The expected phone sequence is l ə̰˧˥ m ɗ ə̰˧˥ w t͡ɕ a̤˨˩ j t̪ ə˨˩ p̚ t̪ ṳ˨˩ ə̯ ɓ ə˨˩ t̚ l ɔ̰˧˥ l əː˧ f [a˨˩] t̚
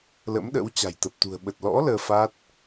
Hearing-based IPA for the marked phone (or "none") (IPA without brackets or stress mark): a˦˥